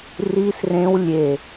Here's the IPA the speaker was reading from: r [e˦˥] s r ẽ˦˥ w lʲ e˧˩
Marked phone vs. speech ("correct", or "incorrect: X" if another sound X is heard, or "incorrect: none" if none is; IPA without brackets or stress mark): incorrect: i˦˥